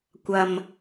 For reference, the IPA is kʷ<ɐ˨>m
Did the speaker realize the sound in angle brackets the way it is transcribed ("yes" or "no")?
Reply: yes